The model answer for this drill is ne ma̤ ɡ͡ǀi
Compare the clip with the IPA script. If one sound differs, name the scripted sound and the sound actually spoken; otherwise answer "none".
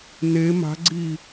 none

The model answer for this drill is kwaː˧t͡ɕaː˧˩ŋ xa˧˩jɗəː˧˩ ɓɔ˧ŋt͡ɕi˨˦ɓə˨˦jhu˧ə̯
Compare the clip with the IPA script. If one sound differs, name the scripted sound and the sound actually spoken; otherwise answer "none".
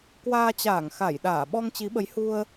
əː˧˩ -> aː˧˩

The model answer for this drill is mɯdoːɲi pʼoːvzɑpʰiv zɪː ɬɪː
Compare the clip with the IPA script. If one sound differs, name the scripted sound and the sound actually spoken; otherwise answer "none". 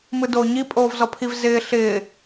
ɑ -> ɔ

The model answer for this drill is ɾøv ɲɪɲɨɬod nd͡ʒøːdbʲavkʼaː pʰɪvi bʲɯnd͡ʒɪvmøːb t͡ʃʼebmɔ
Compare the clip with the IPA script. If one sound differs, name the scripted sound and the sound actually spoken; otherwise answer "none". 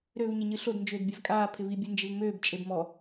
none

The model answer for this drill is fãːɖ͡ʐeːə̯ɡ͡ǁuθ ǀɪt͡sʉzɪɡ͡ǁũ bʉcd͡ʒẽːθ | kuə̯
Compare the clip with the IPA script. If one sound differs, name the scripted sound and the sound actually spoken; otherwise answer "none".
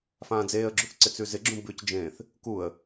ɖ͡ʐ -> d͡z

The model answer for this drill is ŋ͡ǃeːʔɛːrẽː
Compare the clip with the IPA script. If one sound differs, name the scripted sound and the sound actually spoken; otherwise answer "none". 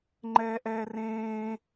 eː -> ɛː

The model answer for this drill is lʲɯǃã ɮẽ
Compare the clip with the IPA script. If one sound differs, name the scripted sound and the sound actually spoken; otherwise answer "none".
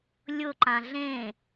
ɯ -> ʊ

